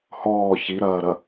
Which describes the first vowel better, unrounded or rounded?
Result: rounded